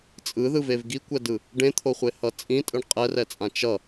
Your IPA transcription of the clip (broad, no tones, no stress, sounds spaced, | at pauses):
t͡sʼ ɯ ð ɯ v e v ɡ i kʷ ɛ d ɯ | ɖ ẽ t̪ʰ o χʷ e h ʌ t͡sʼ ĩ tʼ ɯ ɳ qʼ ɛ r ɛ t͡sʼ ã t͡ʃ ʌ